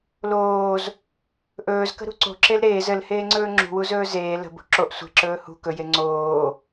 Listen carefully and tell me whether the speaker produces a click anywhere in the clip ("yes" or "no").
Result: yes